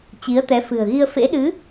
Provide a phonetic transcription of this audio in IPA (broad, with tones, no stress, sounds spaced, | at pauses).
t͡ɕ i˨˦ ə̯ t̪ ɛ˨˦ f ɨ̤˨˩ ə̯ ɣ i˧ ə̯ f ḛ˧˥ ɗ ɨ˨˦